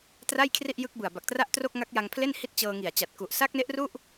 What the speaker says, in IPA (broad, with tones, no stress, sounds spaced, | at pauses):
t r a˥˩ j kʰ r i˥˩ ʔ j ɯ˦˥ k̚ b ɯ˨˩ a̯ b a˨˩ k̚ t r a˥˩ ʔ t r o˥˩ k̚ ŋ a˦˥ k̚ j a˧ ŋ pʰ l e˥˩ n h i˦˥ t̚ t͡ɕ ɤː˧ ŋ i˨˩ a̯ t͡ɕ a˨˩ t̚ k u˨˩ ʔ s a˦˥ k̚ n e˦˥ ʔ r u˥˩ ʔ